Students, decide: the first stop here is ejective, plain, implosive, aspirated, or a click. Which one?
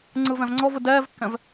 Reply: click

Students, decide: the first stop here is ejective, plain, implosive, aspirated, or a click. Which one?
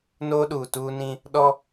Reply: implosive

